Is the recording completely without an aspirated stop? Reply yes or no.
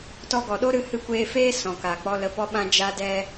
yes